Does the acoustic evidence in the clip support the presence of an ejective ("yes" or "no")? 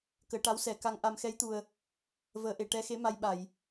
no